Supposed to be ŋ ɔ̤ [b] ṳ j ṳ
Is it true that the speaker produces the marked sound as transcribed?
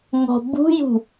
yes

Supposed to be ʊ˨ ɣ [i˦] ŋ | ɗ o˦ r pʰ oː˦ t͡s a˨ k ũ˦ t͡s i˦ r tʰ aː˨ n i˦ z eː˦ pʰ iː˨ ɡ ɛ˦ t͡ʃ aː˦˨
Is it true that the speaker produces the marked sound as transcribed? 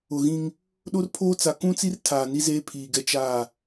no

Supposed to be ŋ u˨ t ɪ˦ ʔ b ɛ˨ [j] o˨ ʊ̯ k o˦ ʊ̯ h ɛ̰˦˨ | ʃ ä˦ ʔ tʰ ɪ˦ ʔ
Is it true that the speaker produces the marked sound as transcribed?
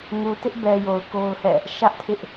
yes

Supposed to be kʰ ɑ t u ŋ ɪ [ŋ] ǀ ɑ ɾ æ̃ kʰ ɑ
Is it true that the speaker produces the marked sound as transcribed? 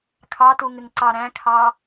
yes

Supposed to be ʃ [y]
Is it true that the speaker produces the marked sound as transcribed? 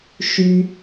yes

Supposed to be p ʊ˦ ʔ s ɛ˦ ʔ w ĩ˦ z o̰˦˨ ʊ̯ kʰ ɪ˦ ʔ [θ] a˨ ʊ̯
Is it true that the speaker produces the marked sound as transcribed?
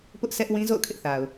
yes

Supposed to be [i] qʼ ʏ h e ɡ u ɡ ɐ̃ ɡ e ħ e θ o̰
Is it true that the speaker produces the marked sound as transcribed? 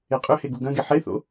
no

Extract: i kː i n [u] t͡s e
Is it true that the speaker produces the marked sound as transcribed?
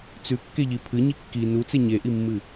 yes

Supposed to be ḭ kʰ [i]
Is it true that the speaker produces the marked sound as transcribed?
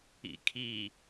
yes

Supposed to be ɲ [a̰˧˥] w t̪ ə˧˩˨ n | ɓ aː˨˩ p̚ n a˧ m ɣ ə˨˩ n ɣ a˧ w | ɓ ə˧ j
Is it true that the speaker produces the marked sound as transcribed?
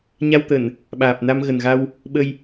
no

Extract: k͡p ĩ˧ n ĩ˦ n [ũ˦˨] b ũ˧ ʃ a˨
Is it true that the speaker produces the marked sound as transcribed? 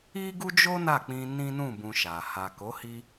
yes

